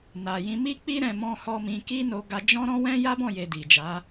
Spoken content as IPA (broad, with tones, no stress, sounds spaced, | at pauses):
n a˨ j ĩ˧ m i˦ k͡p i˦ ɾ ɛ̃˧ m ɔ̃˦ h ɔ˦ m ĩ˧ k i˦ n o˧ ɡ a˧ d͡ʒ ɔ̃˦ ɾ ɔ̃˦ w ɛ̃˦ j a˦ b ɔ̃˦˨ j e˨ d i˨ d͡ʒ a˨˦